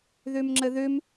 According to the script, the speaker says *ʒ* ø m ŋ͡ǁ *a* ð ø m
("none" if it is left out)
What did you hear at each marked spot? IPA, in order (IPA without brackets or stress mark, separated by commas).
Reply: ð, ə